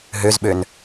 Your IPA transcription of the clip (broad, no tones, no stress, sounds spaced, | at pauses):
ɦ ø z ɓ ø n